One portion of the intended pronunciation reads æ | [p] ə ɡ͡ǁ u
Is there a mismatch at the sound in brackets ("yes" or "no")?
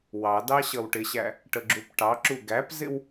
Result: yes